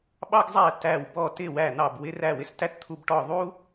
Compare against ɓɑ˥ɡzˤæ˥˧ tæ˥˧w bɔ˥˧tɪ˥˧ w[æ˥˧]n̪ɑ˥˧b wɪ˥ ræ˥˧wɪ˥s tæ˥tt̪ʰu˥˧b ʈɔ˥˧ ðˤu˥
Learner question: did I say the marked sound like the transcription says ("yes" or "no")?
yes